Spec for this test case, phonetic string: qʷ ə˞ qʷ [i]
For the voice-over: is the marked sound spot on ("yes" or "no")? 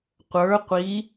yes